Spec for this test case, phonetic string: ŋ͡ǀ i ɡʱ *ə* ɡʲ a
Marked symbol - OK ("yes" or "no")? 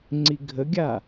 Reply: yes